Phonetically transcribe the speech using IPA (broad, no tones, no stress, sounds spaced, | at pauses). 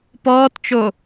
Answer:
p ɔː t t͡ʃ o